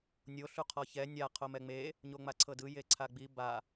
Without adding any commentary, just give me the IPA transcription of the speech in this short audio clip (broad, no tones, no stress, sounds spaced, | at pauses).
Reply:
nʲ o ɬ u qʰ ɔ ç ɛ nʲ a qʰ o m ɛ ŋ͡m e | ɲ o ŋ͡m a ǀʰ ɤ d ɯ j e ǀʰ a ɡ͡b i b a